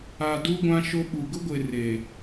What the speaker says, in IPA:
a˨du˦ɡʷã˦ ʃo˦ɓu˨ ɡʊ˦ɡʷe˨ re˨

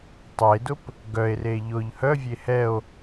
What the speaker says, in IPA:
tˤedʊp | ɡœe̯re ʎʊʎ hœvʲe hɛo̯

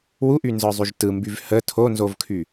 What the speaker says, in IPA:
wuʔynzə˞zˤyʒ tɯmbyv hə tʰonzovkʰy

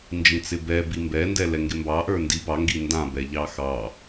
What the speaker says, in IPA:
nd͡ʒĩt͡sɪbɛbi mbɛndɛ lɛŋɡɪmbɑʔə˞ ndi bɑŋɡi ndã bɛʎɑxɑ

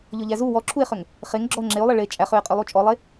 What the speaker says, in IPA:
ʎɔʎæzu wɔǁʰue̯χøŋ | χeŋ ɡ͡ǁɔo̯ŋ͡ǁeo̯lˠe ɭe t͡ʃʼæχøe̯qʼølˠu t͡ʃʼɔlˠe

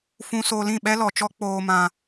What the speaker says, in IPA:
fũ˧so˧ lĩ˦˨ɓɛ˦lɔ˨t͡ʃɔ˦ k͡poː˧mã˧

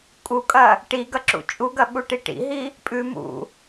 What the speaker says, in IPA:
kʼukʼɐ | ʈiɡɐǁṵ t͡ʃʼuɡɐɓuʈi ʈḭɦi | pʼʉ mṵ

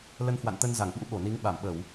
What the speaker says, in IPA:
lə˧nhwa̰˧˨nt̪ə˧nza˧˩ŋ ɓṵ˧˥ɓo˧˩ni˨˦ŋ ɓa˧˩mɓə˧˩˨w

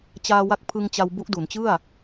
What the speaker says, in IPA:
t͡ɕaː˧wa˦˥k̚ pʰɯ˧ŋt͡ɕa˧w bu˦˥ʔdu˩˦nt͡ɕɯ˥˩a̯

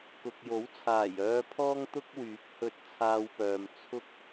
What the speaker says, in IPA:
kʊ˨k̚jo˨˥wt͡sʰaː˨˩j œː˧pʰɔː˥ŋt̪ʊ˥k̚ wyː˨˥k̚hɵ˧t̚t͡sʰaː˧wpœː˨m t͡sʰʊ˥k̚

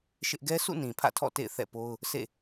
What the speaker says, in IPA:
ʃɪ˦ʔ ɡɛ˦sʰṵ˦˨ nĩ˨pʰä̰˦˨tʰɔ̰˦˨ tḛ˦˨ɪ̯ θɛ̰˦˨po˦ʊ̯ | sḛ˦˨

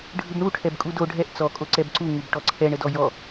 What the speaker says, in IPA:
ɖʱɯbɳu ʈʰɛbkʼudo ɖʱɛʔ t͡sɔ kʼoǀɛbǀu ŋubʈɔǀʰɛɳ ədɔjɔ

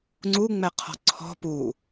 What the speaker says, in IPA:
ŋ͡ǀuŋ͡mɛqʰɔ̤ ǀʰɔ̤ pu

